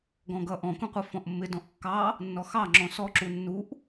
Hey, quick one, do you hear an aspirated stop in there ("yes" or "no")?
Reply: no